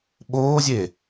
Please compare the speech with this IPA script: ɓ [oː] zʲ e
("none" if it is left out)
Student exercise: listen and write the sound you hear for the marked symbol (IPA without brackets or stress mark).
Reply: oː